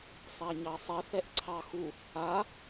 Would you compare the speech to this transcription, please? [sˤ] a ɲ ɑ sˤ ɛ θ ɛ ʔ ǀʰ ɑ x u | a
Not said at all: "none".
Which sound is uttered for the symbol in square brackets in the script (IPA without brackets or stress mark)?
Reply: sˤ